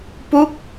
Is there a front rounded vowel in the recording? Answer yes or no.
no